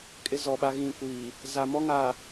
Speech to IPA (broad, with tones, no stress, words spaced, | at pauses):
kʼɪ˦zɔ˨ɓa˦ ɣĩ˨kʷiː˨ | za˨mɔ˦ŋa˨